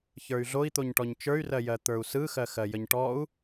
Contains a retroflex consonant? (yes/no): yes